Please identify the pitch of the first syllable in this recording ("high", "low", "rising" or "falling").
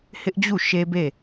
high